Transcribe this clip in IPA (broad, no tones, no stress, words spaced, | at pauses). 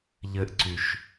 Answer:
ʎɘʔǀyʃ